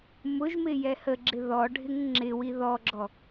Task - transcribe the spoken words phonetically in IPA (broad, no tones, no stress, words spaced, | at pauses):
mʊʒmɪ jɛhəɡ͡ǁɪ ðɔɖʱɪŋ ŋ͡ǁɪwi ðɔɡ͡ǁɔ